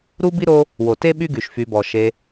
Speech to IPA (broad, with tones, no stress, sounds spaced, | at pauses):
ɾ u˦ b i˥ ɾ o˦ | w o˩ t e˥ ɓ y˥ ɡ y˩ ʃ f y˨ b ɔ˩ ʃ e˨